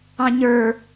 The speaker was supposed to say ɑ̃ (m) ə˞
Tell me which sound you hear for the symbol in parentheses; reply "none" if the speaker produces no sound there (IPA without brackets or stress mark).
ɲ